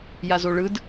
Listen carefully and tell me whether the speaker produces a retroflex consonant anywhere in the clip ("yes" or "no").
yes